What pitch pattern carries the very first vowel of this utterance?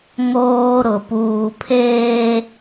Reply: high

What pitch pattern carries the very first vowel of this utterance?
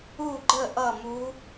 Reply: falling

